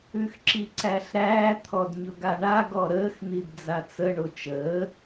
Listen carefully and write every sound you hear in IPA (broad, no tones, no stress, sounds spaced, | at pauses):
ʉ x ǁ i ǀ æ ɬ ɾ æː t̪ʰ ɔ d ɲ ʊ ɡ a ɳ a ɡ ɔ ɾ əː x n̪ i d d͡z a t͡s ə ɳ o t͡ʃ əː